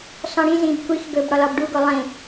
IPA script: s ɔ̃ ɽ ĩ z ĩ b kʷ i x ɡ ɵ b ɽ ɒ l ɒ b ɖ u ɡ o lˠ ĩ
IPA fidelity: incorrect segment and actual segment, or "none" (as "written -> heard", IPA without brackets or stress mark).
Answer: none